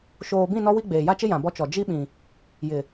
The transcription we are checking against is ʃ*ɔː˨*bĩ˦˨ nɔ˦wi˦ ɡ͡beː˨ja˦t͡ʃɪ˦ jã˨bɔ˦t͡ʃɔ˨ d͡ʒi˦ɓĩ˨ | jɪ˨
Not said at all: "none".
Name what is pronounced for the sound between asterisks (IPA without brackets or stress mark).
oː˨